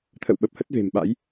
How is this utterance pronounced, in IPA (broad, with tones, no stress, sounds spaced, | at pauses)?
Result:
t̪ʰ ə̰˧˨ w ɓ ə˨˩ p̚ h ə˦˥ t̚ v e̤˨˩ m ɓ a̰˧˥ j